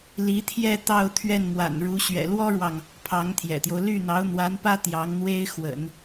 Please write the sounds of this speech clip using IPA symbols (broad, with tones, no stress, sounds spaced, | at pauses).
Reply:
l i˧˥ t̪ʰ j ɛ˥˧ t̪ ɑ˥˧ ʊ̯ t̪ʰ ɥ ɛ˥˩ n m w a̰˨˩ n ɻ u˧˥ ɕ ɥ ɛ̰˨˩ l w ɔ˥ ɻ w ɑ˨ ŋ | pʰ ɑ˧˥ ŋ t̪ʰ j ɛ̰˨˩ t̪ j o˦ ʊ̯ l y˥˩ n̪ ɑ˧˥ ʊ̯ n̪ w a˧˥ n p ä˥ t̪ j ɑ˧˥ ŋ n̪ w e˥ ɪ̯ x w ə̰˨˩˦ n